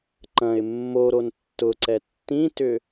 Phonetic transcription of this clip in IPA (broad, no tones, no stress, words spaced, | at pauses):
ǃɐ̃ɪ̯ mːoɾon tːʊǀɛ tːĩtʏ